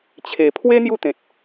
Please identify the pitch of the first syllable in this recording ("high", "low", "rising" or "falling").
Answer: low